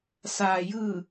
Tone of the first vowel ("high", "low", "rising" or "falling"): low